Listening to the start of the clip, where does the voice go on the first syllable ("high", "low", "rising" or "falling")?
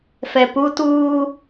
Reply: low